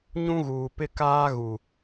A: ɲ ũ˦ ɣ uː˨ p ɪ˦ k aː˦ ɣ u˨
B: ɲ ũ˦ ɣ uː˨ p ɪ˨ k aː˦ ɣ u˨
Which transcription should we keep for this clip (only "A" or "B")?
A